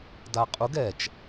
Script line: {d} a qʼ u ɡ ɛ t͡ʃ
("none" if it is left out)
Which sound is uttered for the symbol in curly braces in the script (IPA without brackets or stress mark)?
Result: d